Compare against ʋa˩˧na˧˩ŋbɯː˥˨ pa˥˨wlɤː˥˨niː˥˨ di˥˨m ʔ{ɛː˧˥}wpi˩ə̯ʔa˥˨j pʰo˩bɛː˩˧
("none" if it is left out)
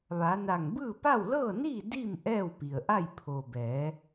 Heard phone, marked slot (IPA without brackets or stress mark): ɛː˥˨